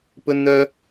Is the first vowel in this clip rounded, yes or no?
yes